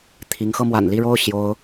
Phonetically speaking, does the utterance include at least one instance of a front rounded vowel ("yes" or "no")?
no